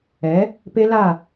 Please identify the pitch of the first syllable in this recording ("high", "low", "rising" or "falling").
rising